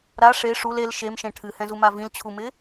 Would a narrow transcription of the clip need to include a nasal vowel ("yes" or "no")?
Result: yes